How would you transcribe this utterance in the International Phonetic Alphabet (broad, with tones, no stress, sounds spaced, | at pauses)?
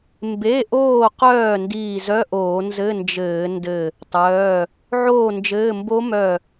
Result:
m b e˩˧˩ ʔ oː˧˩ q œː˧˩ n d iː˧˩ z œ˧˥˧ ʔ oː˧˩˧ n z ɘ˧˥˧ n d͡ʒ ɘː˧˩˧ n d ɘ˧˩ | tˤ œː˩˧˩ | ʕ oː˥˨ n d͡ʒ ɘː˧˥˧ m b o˦˥ m œ˧˩